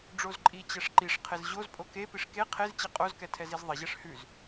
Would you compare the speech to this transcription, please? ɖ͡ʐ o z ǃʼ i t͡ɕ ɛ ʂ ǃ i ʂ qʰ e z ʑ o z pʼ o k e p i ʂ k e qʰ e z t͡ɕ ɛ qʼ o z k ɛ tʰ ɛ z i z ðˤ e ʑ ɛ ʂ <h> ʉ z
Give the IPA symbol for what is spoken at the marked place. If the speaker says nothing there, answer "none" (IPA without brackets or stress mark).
h